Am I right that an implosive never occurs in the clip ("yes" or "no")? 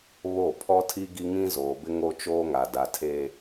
yes